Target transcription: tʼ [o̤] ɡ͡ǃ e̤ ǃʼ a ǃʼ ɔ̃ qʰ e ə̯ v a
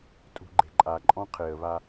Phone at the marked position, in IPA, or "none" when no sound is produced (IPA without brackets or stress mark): ṳ